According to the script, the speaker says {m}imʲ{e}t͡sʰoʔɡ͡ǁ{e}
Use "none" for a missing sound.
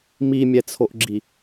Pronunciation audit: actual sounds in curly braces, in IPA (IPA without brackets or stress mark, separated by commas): m, ɛ, i